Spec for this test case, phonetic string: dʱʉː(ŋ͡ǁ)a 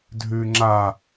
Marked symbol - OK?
yes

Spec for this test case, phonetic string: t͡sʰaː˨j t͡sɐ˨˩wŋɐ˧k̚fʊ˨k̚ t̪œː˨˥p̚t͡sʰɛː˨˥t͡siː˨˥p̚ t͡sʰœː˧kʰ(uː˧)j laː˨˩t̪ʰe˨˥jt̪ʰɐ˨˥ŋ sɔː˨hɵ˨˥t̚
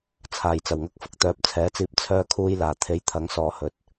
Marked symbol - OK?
yes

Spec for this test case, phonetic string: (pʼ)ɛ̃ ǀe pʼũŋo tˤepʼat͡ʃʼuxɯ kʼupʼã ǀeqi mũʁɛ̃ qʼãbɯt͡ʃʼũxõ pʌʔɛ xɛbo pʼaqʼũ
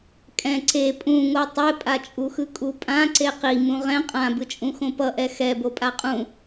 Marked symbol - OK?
no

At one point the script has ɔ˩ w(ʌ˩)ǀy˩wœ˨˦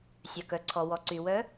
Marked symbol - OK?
no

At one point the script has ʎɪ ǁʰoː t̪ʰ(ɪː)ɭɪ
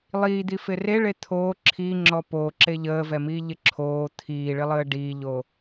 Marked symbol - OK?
no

